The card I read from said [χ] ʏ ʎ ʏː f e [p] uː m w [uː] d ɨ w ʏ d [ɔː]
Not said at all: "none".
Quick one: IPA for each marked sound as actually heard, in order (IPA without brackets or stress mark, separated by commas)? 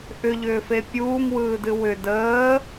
ʔ, pʲ, ɯː, əː